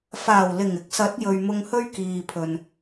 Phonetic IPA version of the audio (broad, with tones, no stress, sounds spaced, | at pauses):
f aː˨˩ w l ɪ˨˩ ŋ ɪ˨ k̚ s ɐ˨˥ t̚ j ɵ˨ ɥ m ʊ˧ ŋ h ɵ˥ ɥ k iː˨ pʰ ɵ˨ n